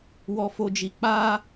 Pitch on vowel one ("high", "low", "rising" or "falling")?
low